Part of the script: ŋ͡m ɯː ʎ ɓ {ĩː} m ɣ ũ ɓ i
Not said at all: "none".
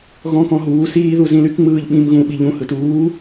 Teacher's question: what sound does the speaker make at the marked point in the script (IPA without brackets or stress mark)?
ĩ